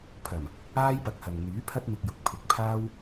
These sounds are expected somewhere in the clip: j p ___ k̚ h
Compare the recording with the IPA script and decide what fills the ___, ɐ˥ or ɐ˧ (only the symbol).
ɐ˧